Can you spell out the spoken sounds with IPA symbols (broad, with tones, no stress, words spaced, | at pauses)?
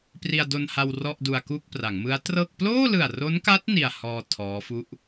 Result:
pri˧a̯do˧nha˧w rɔ˥˩ʔdu˧a̯ku˥˩k̚pra˩˦ŋ mɯ˦˥a̯trɤː˥˩k̚ ploː˥˩lɯ˨˩a̯ro˦˥nka˦˥t̚ ni˧a̯hɔː˧ tʰɔː˦˥fu˥˩ʔ